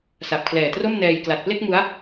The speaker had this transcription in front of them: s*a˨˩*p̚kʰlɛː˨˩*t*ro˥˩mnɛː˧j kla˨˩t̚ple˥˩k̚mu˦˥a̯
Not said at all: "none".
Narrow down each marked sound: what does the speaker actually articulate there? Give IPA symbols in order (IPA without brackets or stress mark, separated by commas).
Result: a˨˩, t